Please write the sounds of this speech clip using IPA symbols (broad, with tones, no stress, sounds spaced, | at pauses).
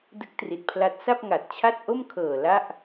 d ɯ˦˥ k̚ t r i˨˩ t̚ pʰ l a˦˥ t̚ s a˥˩ p̚ ŋ a˨˩ t̚ t͡ɕʰ a˥˩ t̚ ʔ o˥˩ m kʰ ɤː˨˩ l a˥˩ ʔ